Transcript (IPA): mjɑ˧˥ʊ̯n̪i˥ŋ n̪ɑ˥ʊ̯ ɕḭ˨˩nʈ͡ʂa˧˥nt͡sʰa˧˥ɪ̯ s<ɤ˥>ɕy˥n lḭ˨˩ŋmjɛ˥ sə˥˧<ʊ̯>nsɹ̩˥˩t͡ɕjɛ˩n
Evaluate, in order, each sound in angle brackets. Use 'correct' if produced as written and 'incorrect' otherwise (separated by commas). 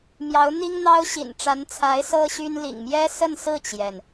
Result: correct, incorrect